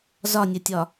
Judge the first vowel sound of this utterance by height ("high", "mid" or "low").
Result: low